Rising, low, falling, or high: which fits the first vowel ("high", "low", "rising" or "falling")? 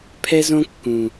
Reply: high